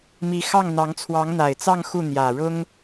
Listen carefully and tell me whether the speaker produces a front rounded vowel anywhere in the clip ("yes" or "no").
no